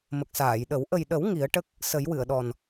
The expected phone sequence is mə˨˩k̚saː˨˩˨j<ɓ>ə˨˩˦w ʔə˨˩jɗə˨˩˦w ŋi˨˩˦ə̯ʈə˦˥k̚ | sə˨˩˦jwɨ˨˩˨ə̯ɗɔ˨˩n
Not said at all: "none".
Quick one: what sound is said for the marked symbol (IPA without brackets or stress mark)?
ɗ